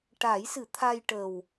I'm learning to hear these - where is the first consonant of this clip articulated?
retroflex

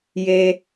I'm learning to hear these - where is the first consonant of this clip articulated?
palate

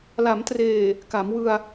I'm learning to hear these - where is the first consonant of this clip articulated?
tongue tip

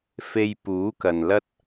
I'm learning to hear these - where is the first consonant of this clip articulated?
lips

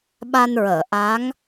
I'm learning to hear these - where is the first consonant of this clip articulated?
lips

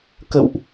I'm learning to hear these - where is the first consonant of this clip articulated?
velum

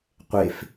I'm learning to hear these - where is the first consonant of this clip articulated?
uvula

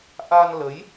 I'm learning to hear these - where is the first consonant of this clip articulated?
throat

